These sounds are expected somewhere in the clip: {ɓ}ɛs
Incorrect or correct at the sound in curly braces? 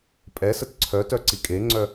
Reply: incorrect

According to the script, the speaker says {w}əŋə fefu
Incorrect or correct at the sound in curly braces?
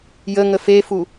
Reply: incorrect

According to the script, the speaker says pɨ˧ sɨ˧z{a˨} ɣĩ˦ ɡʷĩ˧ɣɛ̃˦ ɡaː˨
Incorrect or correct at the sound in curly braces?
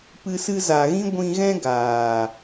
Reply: correct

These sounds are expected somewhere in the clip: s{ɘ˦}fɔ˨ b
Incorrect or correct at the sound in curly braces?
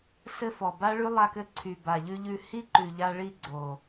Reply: correct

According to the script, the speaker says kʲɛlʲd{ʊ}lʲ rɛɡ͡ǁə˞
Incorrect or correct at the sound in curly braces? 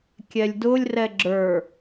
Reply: correct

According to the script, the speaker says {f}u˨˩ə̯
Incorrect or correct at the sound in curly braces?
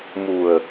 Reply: incorrect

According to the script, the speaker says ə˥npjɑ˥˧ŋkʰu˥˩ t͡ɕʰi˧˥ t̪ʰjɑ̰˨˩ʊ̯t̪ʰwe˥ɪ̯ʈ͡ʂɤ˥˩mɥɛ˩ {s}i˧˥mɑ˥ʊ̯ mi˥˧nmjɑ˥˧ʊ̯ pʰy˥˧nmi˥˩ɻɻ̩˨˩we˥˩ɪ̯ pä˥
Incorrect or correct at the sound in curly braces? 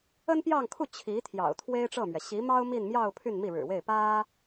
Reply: incorrect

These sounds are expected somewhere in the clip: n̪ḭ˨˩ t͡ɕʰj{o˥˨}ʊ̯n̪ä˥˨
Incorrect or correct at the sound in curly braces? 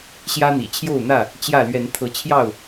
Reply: correct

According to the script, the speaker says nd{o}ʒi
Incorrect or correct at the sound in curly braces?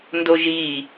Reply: correct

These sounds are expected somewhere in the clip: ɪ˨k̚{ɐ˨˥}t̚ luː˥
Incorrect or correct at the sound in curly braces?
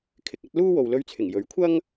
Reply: correct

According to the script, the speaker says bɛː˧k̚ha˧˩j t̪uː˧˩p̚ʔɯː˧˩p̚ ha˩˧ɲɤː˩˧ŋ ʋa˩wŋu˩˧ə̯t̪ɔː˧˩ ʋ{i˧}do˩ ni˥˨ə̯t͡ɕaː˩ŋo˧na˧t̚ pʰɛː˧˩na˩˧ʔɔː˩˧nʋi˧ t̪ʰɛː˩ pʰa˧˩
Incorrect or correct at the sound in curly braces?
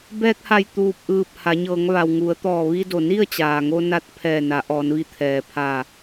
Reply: correct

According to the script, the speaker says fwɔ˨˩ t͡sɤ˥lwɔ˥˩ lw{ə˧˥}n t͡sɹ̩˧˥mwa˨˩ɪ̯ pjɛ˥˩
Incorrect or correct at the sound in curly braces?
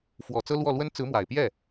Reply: incorrect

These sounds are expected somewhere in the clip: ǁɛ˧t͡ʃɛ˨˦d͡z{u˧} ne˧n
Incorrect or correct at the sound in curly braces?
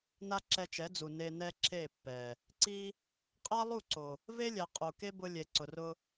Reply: incorrect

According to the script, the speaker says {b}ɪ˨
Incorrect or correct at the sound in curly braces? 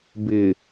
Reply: correct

